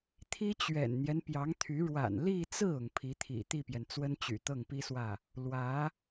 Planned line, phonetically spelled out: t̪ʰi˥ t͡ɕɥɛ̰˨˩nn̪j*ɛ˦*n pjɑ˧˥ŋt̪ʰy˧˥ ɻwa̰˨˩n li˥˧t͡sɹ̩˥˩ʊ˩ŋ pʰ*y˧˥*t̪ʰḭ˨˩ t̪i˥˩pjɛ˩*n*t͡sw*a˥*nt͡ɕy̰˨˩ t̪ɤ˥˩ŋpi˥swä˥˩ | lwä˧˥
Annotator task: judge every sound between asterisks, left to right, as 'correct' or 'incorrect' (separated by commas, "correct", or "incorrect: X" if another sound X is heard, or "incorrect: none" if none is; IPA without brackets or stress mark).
correct, incorrect: i˧˥, correct, incorrect: ə˥